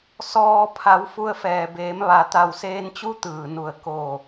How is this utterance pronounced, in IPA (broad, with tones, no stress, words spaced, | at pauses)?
sɔː˩ pʰa˩˧w fu˧ə̯fɛː˩beː˩˧m ʋa˩t̪a˧˩wseː˧nt͡ɕu˧˥ t̪ɯː˩nu˧˩ə̯ koː˧˩